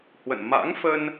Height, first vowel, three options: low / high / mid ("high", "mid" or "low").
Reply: mid